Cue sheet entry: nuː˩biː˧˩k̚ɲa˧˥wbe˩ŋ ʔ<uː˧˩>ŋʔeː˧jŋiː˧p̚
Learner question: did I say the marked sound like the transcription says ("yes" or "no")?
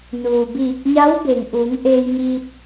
no